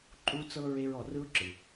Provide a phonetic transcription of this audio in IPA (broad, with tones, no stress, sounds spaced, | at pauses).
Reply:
ǃʼ u˦ t͡s ɤ˦ ɹ e˧ ɹ ɔ˨ r ɯ˦ ʊ̯ ǁ ɯ˨